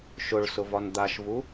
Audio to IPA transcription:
ʃʊɭ sʊvɒnd̪aʃvu

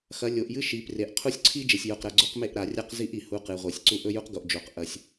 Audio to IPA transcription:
xɐ˨˦ lʲo˨ʔjɨ˦ ʃi˨˦pre˨˦ʔ qʰu˦sʲǀʰi˦ d͡ʒe˨sʲjo˨qɾɐ˨ ɡ͡ǀo˦qme˦˨ʔɾa˨rʲa˦q zi˦ʔ i˨hu˦ qɨ˨ʁʷe˨sʲǀu˦ ʔɵ˦ju˦qɡo˨ʔd͡ʒo˨q ʔɐ˦sʲ

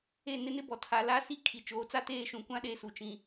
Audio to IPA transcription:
e˦˨ nɪ˦nɪ˦bɔ˨tʰa˨˦ la˦si˦ kʰi˨t͡ʃoː˨˦t͡sa˦ teː˦˨ ʃũ˨kʷã˦ ɗe˦˨su˨t͡ʃĩ˨

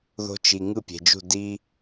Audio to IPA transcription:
ðo̤˦t͡ʃi˨ ŋɯ˦˨pʲe̤˨d͡ʒṳ˦˨ di˦

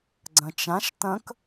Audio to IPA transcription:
ɡ͡ǀɐ̃t͡ʃãʃ tɐ̃k

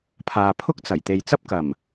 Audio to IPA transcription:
pʰaː˨pʰʊ˥k̚t͡sɐ˨˩jt̪e˨j t͡sɐ˥p̚kɐ˨˩m

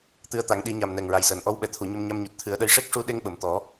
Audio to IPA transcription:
t̪ɨ˧ə̯t̪a˨˩˦ŋɗi˨˩˦ɲa˨˩m nɛ˨˩ŋɹa˨˩jsəː˨˩˨n ʔɔ˧˥wɓɛ˨˩˨t̪ʰu˨˩˨ ɲə˧mɲa˧mɲu˨˩t̚ t̪ʰɨ˨˩˦ə̯ɗə˧˥j ʂe˦˥k̚ʂu˧ɗe˧ŋ ɓə˨˩˨mt̪ɔ˨˩˦

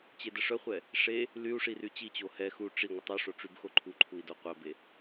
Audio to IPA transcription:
t͡ɕedəʂœχʷɛ | ʂe | lyu̯ ʂiryt͡ɕit͡ɕo hɛ xu ʈ͡ʂi ŋʷətˤuʂo ʈ͡ʂybxoǃʰuǃʰui̯ doqʷœbe

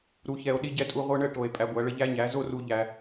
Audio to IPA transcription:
ɾu˨ çɛ˨o̯ ɗi˧ɟɛ˧tʼu˧ ʁʷɯ˧ɳə˦˨ʈo˨e̯ pʼæ˧ɡʷæ˨˦ɭə˦ ʎæ˦ɲæ˨˦ zo˦ru˧ ʎæ˧

